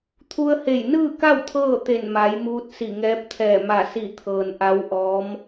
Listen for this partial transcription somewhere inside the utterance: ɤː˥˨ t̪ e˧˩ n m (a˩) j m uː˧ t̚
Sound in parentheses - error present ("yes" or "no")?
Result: yes